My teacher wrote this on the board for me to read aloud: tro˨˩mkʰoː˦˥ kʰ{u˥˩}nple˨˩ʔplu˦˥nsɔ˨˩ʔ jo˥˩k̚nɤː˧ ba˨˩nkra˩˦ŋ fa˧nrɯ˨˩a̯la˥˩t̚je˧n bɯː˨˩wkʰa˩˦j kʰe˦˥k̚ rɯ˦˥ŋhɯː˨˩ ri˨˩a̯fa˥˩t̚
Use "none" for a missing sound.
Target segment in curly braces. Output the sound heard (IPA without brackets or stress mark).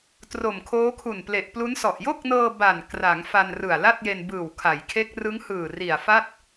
u˨˩